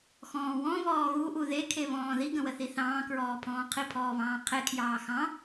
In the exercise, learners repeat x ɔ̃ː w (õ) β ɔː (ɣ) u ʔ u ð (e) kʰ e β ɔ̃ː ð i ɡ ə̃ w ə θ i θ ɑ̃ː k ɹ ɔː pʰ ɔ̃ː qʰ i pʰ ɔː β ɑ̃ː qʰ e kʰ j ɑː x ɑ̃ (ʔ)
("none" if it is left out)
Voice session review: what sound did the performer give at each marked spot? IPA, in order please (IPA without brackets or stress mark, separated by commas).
ɔ̃, ɣ, e, none